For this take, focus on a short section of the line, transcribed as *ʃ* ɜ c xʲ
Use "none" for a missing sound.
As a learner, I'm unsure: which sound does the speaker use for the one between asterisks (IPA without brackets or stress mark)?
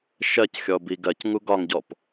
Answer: ʃ